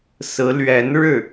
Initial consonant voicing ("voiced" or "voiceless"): voiceless